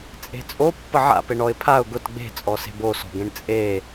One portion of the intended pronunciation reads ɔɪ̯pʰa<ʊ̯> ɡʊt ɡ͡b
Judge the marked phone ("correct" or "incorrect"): correct